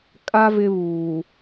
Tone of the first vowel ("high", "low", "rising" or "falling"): high